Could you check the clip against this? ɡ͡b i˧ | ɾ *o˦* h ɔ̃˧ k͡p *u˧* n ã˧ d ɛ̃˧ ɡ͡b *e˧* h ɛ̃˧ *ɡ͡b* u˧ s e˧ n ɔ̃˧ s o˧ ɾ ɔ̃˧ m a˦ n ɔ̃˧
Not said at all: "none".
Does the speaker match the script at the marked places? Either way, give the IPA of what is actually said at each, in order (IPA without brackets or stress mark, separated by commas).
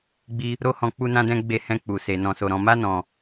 o˦, u˧, e˧, k͡p